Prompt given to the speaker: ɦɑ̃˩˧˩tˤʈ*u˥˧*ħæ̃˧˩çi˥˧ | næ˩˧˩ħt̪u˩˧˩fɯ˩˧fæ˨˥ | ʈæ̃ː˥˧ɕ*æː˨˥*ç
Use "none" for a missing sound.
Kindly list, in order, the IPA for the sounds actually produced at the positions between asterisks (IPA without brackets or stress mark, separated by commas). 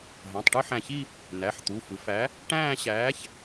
ɯ˥˧, æː˨˥